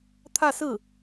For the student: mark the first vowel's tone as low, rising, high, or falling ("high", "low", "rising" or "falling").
falling